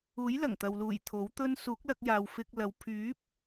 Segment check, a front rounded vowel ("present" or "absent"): present